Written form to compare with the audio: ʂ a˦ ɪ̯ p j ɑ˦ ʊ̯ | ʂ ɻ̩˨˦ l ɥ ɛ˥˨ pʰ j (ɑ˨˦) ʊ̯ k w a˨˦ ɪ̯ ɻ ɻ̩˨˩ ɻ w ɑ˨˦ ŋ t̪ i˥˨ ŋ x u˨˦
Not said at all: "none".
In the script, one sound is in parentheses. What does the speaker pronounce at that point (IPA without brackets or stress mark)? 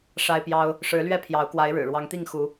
ɑ˨˦